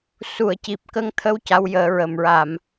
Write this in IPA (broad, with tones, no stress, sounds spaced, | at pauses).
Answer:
s u˨˩˨ ə̯ c i˨˩ p̚ k ə˧ ŋ t̪ʰ ə˧ w c a˧˥ w j əː˨˩˦ ɹ ə˨˩ m ɹ a˨˩˨ m